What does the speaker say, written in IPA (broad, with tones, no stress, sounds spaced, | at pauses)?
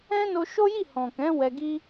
ɛ̃˦ n o˧ ʃ o˦ j i˦˨ h ɔ̃˨ k ɛ̃˨˦ w ɛ˧ ɡ i˦